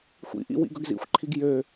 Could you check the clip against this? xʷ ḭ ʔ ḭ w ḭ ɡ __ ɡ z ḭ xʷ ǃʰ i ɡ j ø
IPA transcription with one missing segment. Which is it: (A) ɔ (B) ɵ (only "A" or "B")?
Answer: B